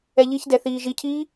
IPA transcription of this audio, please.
ɛ ʎ i ç d ɛ θ iː ʒ i cʰ iː

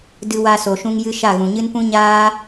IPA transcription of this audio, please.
d ɨ˧ w a˧ s o˨ ʃ ũ˧ ŋ j ɨ˦ ʃ a˦˨ ɣ ũ˨ ɲ ɨ˦ n p ũ˦ ɲ aː˦

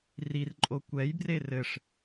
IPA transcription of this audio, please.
r i r ǃʼ o kʷ ɛ j b r e r ɘ ʂ

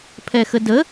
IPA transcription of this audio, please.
pʰ ɛ x ə d ə

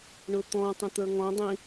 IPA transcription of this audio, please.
ɳ ʊ t̪ ɔ̃ tˤ ə̃ t̪ ə˞ ŋ ɔ̃ dˤ ĩ

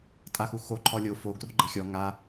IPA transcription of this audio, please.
tʼ a x u x o ǃʰ ɔ lʲ o f o ɡ r o̤ ɡ͡ǃ ɛ̤ xʲ ɔ ŋ a

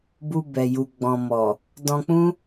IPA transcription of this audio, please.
b u˧ b ɛ˨ j u˨ ɡ͡b ɔ̃˨ m ɔ˨ | d ɔ̃˧ k͡p ũ˦

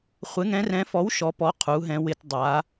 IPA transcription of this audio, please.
χʷ ɪ˩˥ ŋ ɛ̃˩˥ r ɛ̃˩˥ f ɔ˩˥ w ʃ ɔ˩˧ p ɔ˩˧ qʰ u˩˧ ɦ ɛ̃˩˧ w ɪ˩˧ t dˤ a˩˧

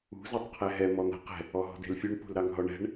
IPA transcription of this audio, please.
ṳ z ɑ tˤ qʰ ɛ ɦ ɛ m ɔ n̪ a̤ q ɛ̤ | ɔ ɦ ɔ̤ d e̤ l fʲ u ɳ p ṳ l ɾ ɑ ŋ ɦ ɔ ɳ ɛ̤ ɳ

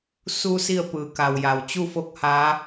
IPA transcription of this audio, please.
s u˧ s i˥˨ ə̯ p ɯː˩˧ k a˩ w j a˩ w t͡ɕ u˥˨ f o˥˨ k̚ h aː˧˥

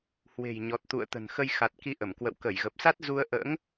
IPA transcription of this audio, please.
h w e̤˨˩ j ɲ ɔ˨˩ t̚ t̪ ṵ˧˨ ə̯ t̪ ə̤˨˩ n x ə˧ j x a˨˩ t̚ k i˨˦ ʔ ə˧˩ m k w ə̰˧˨ w k ə˧˩ j ɣ ə˨˩ p̚ s a˦˥ t̚ z u˧ ə̯ ʔ ə̰ː˧˥ ŋ

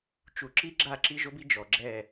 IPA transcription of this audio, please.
t͡ʃ u˨ ǁ i˦ ɡ͡ǁ a˦˨ ǁ i˦ ʒ o˦ b i˦ d͡ʒ ɔ˨ ɡ͡ǁ ɛ˦˨

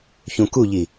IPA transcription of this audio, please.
ç ũ k u ʎ i

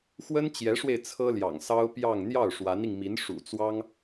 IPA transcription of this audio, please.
x w ə˥ n t͡ɕ j ɛ˧˥ ʂ w e˧ ɪ̯ t͡sʰ ɤ˥ l j ɑ̰˨˩ ŋ s ɑ˥ ʊ̯ p j ɑ˥˧ ŋ n̪ j ɑ˥˩ ʊ̯ ʂ w a˧˥ n i˧ ŋ m i˧˥ n ʂ ṵ˨˩ t͡s w ɑ˥ ŋ

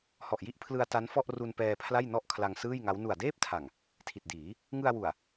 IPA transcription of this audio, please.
h ɔ˨˩ ʔ j i˦˥ ʔ pʰ l ɯ˧ a̯ t a˦˥ n f ɔ˥˩ ʔ r u˧ n p ɛː˧ pʰ l a˥˩ j n ɔ˥˩ ʔ kʰ l a˧ ŋ s ɯː˥˩ j ŋ a˦˥ w n u˨˩ a̯ d eː˥˩ p̚ tʰ a˨˩ ŋ | tʰ i˨˩ t̚ d iː˩˦ | ŋ ɯ˧ a̯ w u˨˩ a̯

